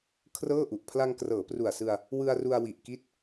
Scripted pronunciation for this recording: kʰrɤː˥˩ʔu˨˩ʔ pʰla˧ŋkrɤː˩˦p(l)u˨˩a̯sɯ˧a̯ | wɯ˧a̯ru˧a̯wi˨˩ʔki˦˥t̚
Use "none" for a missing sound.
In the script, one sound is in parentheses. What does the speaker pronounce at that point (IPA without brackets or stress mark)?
r